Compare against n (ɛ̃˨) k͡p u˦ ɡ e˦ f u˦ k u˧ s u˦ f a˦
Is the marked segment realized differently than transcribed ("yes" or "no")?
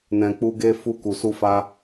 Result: yes